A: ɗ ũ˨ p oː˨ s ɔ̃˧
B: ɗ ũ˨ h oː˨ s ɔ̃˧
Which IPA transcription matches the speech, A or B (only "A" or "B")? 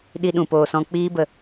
A